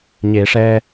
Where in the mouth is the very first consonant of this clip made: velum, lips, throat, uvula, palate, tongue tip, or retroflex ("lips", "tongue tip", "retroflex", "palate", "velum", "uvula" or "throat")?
palate